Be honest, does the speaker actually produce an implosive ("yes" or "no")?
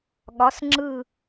yes